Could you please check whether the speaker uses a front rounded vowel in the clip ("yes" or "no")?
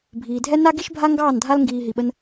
no